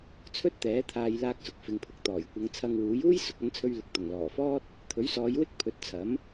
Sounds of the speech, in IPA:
t͡sʰ ɵ˥ t̚ t̪ ɛː˨˥ t̪ʰ aː˧ j l aː˧ k̚ s ʊ˨ k̚ f ɪ˨ ŋ pʰ ʊ˨ k̚ t̪ ɔː˨˩ j kʷ ɐ˨˧ ŋ t͡sʰ ɐ˧ ŋ w uː˨˥ j uː˥ j s ʊ˨˥ k̚ ɐ˨˥ n t͡sʰ ɵ˧ ɥ l ɪ˨ k̚ t̪ ʊ˨˩ ŋ l ɔː˨˩ f ɔː˥ t̚ | t̪ʰ ɵ˨˥ ɥ s ɔː˨˧ j w ɪ˥ k̚ pʰ ɵ˨˥ t̚ t͡sʰ ɐ˨˥ m

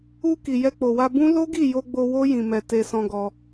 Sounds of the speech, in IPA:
u˧ k i˨ j ɛ˧ k͡p o˨ w a˧ b ũ˦ l o˦ ɡ i˦˨ j o˧ ɡ͡b o˧ w o˦ j ĩ˧ m ɛ˧ t e˧ s ɔ̃˧ ɡ ɔ˧

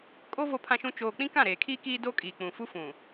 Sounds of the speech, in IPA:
kʼ o˦ v o˦ pʰ ã˦ ʃ ũ˦ t͡ʃ oː˨ k͡p ĩ˦ k ã˦˨ ɾ eː˨ kʰ iː˦ k iː˦ d o˦ kʼ iː˨ k͡p ũ˨ f u˦ f ũ˨

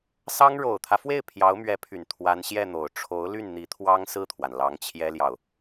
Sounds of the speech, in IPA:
s ɑ˥ ŋ ɻ o˨˩ ʊ̯ t̪ʰ ä˦ f w e˥˩ ɪ̯ pʰ j ɑ˧˥ ʊ̯ m ɥ ɛ˧˥ pʰ y˨˩ n t̪ʰ w a˧˥ n ɕ j ɛ˥˩ n̪ o˨˩ ʊ̯ ʈ͡ʂʰ o˧˥ ʊ̯ l y˥˩ n n̪ i˧˥ t̪ʰ w ɑ˥ ŋ s ɹ̩˥˩ t̪ʰ w a˩ n l ɑ˧˥ ŋ t͡ɕʰ j ɛ˥ l j ɑ˨ ʊ̯

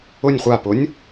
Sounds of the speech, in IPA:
ʊ nʲ χʷ a p ʊ nʲ

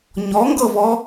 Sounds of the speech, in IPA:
ɲ ɔ ŋ ɡ ɤ v ɔ

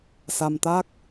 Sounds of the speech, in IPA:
s a˧ m t̪ a˦˥ k̚

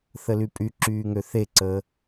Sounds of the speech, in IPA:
θ ə l y pʼ y ǁ yː ŋ ø θ e ǀ əː

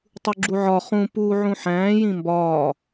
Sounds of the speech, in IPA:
tˤ u ɡ͡ǁ u ʕ ɒ χ ũ p uː ʕ ũ ħ æ̃ː j ĩ m b ɒː

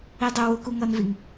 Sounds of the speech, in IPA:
i dˤ ʊ w ʊ k u ŋ ʌ n v i ŋ

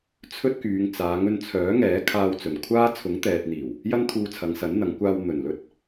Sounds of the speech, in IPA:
t͡sʰ ɵ˥ t̚ k yː˨˧ ŋ t͡s aː˨˧ ŋ ɵ˧ n t͡sʰ œː˨˥ ŋ ɛː˨˥ kʰ aː˧ w t͡s ɵ˨˩ n kʷʰ aː˥ t͡sʰ ʊ˨˥ ŋ t̪ ɛː˨ t̚ n̪ iː˨˩ w | j ɐ˥ n t̪ʰ uː˧ t͡sʰ ɐ˨˧ ŋ s ɐ˨˥ n n̪ ɐ˨˧ ŋ kʷ aː˧ w n̪ ɵ˨˩ n l ɵ˥ t̚

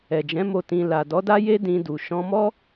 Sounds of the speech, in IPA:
ɛ˨ d͡ʒ ɛ̃˨˦ m o˧ t ĩ˧ l a˨ d ɔ˨˦ d a˦ j e˦ d ĩ˧ d u˨ ʃ ɔ̃˧ m ɔ˦

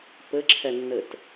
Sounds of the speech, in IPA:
p ɘ ǁʰ ɛ nː ɘ t

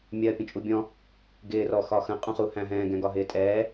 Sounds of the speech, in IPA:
mʲ ɜ pʲ ə̃ t͡ʃʼ u bʲ ɔ̃ | ɡ ɪː r ɔ x ɒ x ə̃ qʼ ũ χ u h æ̃ ɦ ɛ̃ː ɡ ɛ̃ ɡ ɒ ɦ ɪː tʼ ɛː

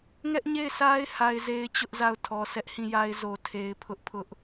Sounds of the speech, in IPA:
ŋ ɛ˦ ʔ ɲ e˦˨ ɪ̯ s a˦ ɪ̯ h a˦ ɪ̯ z e˦ ɪ̯ t͡ɕ ʊ˦ ʔ z a˦˨ ʊ̯ tʰ ɔ˨ sʰ ɛ˦ ʔ h ĩ˦˨ j a˦ ɪ̯ z o˨ tʰ e˨ ɪ̯ pʰ ʊ˦ ʔ pʰ ʊ˦ ʔ

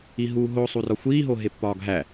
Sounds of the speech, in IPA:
i ɦ uː ɦ o sˤ u r ɒ xʷ iː ɦ o ɦ e pː ɒː ɡ ɦ æ

